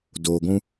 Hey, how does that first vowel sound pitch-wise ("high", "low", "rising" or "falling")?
low